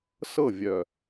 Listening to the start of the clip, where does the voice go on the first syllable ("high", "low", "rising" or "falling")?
falling